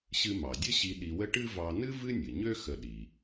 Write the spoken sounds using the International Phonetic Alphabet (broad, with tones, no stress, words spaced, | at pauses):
ɕɨ˧mɑ˩dʲə˥ɕi˧ ɗi˧wə˥ ʈɨ˥ vɑ˧nɨ˥ vɨ˥nʲɨ˩ɲø˥ xə˧ɗi˩